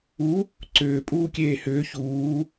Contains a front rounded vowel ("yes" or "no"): yes